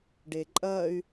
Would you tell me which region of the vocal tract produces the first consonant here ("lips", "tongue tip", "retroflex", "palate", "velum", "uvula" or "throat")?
retroflex